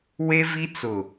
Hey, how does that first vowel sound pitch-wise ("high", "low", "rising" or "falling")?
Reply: high